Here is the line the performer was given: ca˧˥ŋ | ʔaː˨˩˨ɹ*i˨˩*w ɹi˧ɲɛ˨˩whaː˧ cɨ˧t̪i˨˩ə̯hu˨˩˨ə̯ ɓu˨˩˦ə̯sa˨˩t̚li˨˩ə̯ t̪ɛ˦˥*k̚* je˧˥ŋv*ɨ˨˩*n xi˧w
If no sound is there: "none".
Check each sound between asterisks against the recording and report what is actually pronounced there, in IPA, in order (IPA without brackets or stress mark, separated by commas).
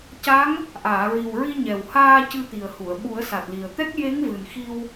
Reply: i˨˩, k̚, ɨ˨˩